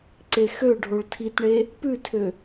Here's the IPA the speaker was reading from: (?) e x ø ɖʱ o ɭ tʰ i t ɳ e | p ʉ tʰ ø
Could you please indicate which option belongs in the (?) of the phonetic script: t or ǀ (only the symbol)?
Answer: ǀ